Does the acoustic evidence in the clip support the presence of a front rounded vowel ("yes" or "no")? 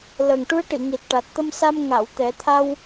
no